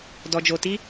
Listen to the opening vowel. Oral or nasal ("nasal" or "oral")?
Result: oral